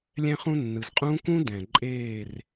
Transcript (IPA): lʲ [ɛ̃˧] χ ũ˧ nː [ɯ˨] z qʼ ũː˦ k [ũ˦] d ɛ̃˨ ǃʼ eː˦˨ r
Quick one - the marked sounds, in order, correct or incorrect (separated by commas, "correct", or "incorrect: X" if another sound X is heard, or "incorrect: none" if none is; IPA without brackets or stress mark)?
correct, correct, correct